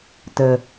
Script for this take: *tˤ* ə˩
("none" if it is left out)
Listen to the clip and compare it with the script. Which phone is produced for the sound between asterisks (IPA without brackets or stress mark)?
t